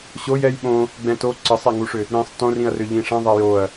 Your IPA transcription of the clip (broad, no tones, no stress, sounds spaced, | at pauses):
ɕ o j ɛ j ɓ õ | ɡ͡b ɛ̃ t o ǀ ə sˤ ɛ ŋ u ʂ ʏ | ɾ ĩ sˤ t õ r ĩ ɐ̯ r ʏ ʎ ĩ ʂ ɛ̃ ðˤ ɛ j o ɐ̯